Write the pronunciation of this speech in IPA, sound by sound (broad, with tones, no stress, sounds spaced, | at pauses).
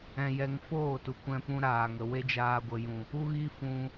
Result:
ɛ̃˧ j ɛ˧ ŋ f oː˦˨ t u˨ kʷ ɛ̃˧ p ũ˧ ɾ aː˨ ŋ ə˨ w e˦ d͡ʒ aː˧ ɡʷ ə˨ j ũ˨ | u˦ ɣ i˦ f ũ˧